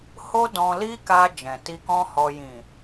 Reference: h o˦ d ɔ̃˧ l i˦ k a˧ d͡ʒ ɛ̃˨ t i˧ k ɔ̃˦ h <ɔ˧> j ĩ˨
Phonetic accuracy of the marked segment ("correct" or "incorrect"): correct